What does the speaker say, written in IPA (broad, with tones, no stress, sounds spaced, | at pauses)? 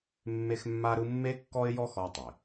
mː e˥ x mː a˥ ɾ ɯ˥ mː e˥ kː ɔ˥ ɪ̯ j ɔ˥ x ɔ˧ tˤ e˩